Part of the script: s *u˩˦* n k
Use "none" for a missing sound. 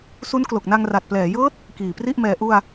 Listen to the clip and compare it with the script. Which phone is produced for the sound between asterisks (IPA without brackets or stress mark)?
u˦˥